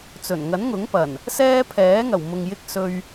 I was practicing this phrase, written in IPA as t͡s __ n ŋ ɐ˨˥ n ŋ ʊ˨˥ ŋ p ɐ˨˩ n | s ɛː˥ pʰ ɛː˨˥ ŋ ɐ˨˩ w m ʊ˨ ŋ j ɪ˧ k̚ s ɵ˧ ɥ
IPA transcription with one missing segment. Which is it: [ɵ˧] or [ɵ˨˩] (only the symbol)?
ɵ˨˩